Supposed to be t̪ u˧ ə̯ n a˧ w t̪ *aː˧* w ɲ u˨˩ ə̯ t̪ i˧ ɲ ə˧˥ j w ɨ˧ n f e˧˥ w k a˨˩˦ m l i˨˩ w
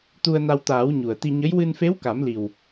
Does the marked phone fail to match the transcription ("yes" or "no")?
yes